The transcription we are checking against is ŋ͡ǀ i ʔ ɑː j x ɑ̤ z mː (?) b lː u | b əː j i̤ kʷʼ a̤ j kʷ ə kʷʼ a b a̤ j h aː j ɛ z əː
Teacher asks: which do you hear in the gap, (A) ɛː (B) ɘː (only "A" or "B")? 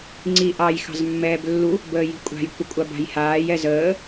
A